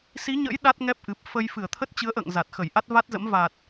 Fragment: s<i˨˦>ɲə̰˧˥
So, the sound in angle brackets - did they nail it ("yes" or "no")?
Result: yes